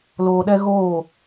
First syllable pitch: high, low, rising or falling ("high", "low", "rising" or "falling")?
low